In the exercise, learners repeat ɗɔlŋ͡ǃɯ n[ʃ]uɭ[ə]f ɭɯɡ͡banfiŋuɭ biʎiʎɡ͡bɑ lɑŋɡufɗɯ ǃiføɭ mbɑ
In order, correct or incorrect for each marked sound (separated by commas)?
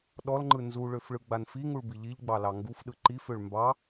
incorrect, incorrect